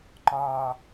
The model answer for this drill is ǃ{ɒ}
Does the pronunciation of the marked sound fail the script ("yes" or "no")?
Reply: no